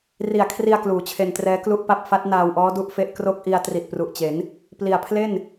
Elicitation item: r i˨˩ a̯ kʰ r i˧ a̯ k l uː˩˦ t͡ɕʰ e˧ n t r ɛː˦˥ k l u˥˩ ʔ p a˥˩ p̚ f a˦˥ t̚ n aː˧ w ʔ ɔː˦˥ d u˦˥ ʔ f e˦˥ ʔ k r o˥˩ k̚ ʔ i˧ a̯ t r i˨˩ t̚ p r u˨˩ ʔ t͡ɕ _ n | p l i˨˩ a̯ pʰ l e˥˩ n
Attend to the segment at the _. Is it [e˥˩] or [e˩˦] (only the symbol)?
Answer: e˩˦